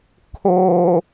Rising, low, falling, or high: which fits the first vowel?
low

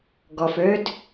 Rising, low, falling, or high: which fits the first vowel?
low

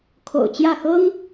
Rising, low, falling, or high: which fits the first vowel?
low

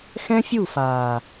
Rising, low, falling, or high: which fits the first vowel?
high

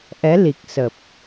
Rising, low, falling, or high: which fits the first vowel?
rising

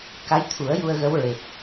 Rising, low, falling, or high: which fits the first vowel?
rising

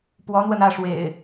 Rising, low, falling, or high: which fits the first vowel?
rising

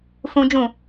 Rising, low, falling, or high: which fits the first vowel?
high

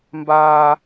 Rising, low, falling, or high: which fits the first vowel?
high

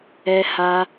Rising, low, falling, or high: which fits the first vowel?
high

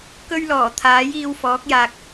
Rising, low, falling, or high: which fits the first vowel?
high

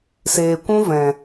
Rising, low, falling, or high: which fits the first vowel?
low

